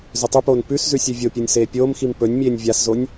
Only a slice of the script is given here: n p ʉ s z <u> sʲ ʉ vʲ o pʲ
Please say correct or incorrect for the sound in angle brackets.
incorrect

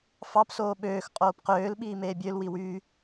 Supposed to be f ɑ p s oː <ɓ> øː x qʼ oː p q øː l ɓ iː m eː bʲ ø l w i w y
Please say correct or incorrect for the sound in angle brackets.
correct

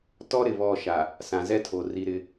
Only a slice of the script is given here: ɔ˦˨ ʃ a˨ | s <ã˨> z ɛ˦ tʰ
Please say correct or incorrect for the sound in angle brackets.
correct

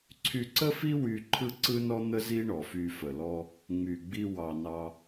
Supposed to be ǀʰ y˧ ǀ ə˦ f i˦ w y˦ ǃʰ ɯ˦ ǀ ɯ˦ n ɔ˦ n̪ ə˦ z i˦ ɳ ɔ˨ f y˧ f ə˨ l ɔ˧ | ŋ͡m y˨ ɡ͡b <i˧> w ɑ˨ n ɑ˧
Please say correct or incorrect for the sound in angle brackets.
correct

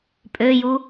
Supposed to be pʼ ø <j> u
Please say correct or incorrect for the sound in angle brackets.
correct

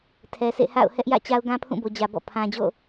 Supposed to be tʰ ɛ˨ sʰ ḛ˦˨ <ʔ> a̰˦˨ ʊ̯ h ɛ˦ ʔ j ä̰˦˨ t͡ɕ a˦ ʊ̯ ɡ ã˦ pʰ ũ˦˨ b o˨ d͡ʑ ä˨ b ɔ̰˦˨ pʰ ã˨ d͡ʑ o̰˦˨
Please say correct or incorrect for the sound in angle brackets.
incorrect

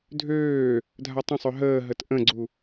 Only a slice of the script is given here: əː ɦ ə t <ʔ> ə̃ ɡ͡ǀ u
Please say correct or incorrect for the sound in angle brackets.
correct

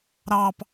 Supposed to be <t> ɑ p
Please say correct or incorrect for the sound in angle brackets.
incorrect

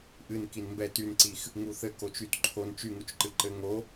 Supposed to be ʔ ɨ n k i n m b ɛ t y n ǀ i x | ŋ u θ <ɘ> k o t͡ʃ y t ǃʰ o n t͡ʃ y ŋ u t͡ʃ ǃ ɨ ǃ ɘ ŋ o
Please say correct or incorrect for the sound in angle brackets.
correct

